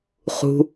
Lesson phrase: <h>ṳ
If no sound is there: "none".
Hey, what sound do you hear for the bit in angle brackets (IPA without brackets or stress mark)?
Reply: χ